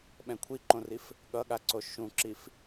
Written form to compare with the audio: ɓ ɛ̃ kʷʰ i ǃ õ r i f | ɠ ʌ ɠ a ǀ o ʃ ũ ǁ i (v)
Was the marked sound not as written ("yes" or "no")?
yes